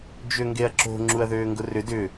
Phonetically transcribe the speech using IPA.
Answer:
d͡ʒøŋɡeɐ̯ǁo̤ ŋ͡ǁuɐ̯ðøːŋɡʊrʏ dʏ

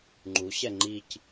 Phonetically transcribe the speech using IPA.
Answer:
ŋ͡ǃuɕɛ ŋ͡ǃic

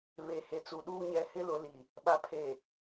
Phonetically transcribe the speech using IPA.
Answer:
βe˨he˨t͡su˨ ɗuː˦ ɲɛ˨hɪ˦lʊ˨ li˨ | ɓa˨pʰe˨

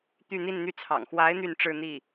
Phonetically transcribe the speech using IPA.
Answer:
t̪y˥˧n̪i˥˧nn̪y˥˩t͡sʰɑ̰˨˩ŋ xwa˧˥ɪ̯ n̪y˥˧nʈ͡ʂɻ̩˥˧n̪i˥˩

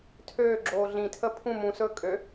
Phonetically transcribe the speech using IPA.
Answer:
tʰøːɡ͡ǁoː ɮĩtʰə pʰũ mũsɵː kʼø

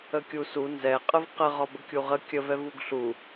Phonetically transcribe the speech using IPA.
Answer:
əkʲusu nzɛ qʼəvqə ʁɒbəkʲuʁə kʲəv ɛvuɡɬu

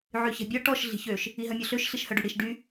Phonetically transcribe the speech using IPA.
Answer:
ʕyçɛ̤bʲɔ ʈɔʃ ɮi̤çøʃ | iɦœmʲɔɬøʃ ɬiʃhœɖyɽiʃ ɖy

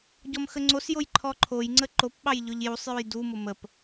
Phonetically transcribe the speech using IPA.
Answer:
ɟɔmxəŋ͡ǀosjoj ǃʰɔǃʰojŋ͡ǀə ǃopɓɑj ʎʊʎjusˤjuj dumʊ məp

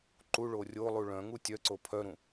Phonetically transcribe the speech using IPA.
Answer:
ǃu ɭorʲolˠu ɭœ̃ŋu tʲœǀo pʰœɾũ

